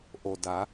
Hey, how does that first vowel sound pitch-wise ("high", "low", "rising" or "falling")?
low